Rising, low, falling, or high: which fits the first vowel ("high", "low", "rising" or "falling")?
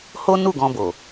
high